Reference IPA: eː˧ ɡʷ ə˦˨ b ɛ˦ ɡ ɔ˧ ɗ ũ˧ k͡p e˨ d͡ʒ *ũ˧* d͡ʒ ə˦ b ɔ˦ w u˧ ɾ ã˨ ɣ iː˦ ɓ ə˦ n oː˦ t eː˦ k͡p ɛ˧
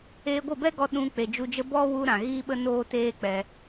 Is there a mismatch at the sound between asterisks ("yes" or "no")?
yes